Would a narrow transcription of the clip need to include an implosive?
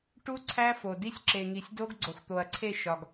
no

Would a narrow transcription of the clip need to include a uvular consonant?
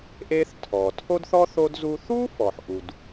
no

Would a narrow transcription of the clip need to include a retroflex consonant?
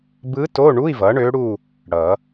yes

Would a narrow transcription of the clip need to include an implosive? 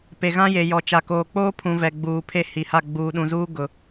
yes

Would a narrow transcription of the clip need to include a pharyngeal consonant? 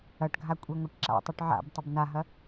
yes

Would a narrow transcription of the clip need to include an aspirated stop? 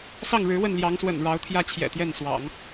yes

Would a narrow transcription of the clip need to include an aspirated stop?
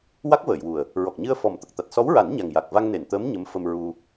no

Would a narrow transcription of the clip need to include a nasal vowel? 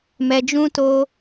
yes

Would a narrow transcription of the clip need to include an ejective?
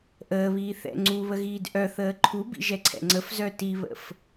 no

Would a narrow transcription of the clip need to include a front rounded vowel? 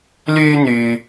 yes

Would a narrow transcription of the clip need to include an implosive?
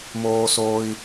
no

